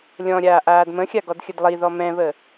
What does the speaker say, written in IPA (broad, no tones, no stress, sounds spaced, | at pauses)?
lʲ ɔ̃ ɾʲ aː ʔ aː d m ə̃ xʲ a ɡ ɔ d xʲ ə d lˠ i ð ɔ m ɛ̃ β ə